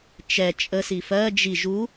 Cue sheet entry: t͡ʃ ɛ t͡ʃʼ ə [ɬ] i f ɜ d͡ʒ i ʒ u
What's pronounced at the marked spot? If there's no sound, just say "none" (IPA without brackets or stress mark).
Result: s